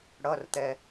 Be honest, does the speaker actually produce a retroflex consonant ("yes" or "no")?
yes